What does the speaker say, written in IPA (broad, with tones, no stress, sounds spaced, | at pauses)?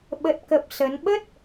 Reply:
ɓ ə˨˩ t̚ k ə˨˩ p̚ s ə˨˦ n ɓ ə˦˥ t̚